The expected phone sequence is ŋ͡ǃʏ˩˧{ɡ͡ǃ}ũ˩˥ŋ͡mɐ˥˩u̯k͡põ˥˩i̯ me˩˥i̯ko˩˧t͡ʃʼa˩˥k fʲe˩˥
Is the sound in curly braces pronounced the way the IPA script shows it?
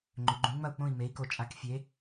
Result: yes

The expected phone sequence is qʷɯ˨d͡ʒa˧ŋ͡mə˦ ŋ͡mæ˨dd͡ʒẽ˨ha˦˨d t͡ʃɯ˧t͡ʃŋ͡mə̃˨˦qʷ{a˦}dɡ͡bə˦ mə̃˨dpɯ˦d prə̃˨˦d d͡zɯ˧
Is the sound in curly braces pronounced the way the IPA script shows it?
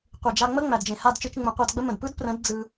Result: no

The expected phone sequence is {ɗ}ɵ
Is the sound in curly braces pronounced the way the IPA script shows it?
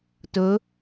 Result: no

